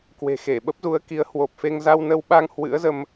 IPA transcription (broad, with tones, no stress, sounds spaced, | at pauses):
k w e̤˨˩ x e˧˩ ɓ ə˦˥ p̚ z u˨˦ ə̯ k i˨˦ ə̯ h w o˨˩ p̚ f e˧ ŋ z a˧ w n ə˧ w ɓ a˧ ŋ h w ɨ̰˧˥ ə̯ z ə˧ m